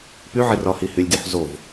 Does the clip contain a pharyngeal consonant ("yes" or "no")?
yes